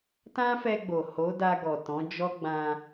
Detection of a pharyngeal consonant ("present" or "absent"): absent